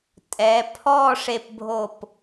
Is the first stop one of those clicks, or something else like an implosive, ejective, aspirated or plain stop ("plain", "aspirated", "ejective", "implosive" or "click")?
ejective